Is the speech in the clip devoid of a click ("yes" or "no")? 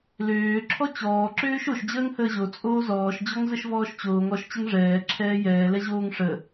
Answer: no